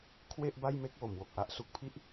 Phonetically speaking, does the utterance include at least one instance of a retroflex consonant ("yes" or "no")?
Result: no